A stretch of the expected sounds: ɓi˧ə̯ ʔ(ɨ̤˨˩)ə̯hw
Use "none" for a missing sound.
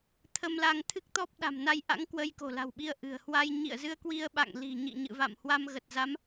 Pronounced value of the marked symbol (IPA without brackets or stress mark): ɨ̤˨˩